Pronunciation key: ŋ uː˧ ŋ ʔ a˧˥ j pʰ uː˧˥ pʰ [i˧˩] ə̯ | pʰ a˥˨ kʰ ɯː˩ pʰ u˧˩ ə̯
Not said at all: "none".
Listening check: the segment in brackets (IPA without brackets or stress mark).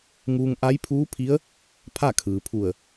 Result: i˧˥